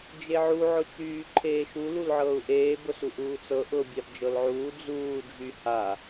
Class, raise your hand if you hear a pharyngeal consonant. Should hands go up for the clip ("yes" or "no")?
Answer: yes